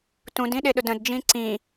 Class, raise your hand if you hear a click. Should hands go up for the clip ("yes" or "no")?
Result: yes